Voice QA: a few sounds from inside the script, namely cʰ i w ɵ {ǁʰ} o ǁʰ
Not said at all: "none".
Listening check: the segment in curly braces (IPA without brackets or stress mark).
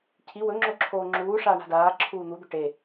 ŋ͡ǁ